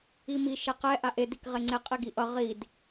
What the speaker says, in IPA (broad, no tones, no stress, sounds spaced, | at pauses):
i m i ʃ e q ɛ ʔ a ʔ e d i k ʁ e ŋ͡ǀ e qʼ i ɡ i ʔ ʌ ʁ i d